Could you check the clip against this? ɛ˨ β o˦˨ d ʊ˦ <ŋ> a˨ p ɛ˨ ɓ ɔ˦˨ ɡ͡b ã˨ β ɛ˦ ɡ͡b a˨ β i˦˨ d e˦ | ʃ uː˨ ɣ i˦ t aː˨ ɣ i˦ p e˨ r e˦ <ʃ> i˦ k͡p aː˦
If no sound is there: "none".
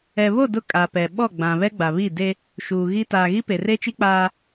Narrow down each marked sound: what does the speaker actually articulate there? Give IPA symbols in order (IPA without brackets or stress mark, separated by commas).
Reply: kʼ, t͡ʃ